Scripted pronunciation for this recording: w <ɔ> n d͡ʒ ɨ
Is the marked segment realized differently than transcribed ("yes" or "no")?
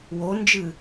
yes